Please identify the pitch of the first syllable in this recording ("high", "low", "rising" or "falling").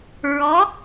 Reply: rising